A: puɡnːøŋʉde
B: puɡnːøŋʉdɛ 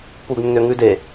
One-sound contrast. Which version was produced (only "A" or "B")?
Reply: A